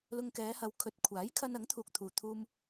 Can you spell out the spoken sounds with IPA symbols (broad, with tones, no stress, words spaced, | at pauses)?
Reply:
lʊ˧ŋkɛː˨˧hɐ˨˧w kʰɵ˨t̚kʷʰaː˨˥j kʰɐ˧nɐ˨˥ŋt̪ʰuː˨k̚ t̪ʰuː˨t̪ʰuː˧m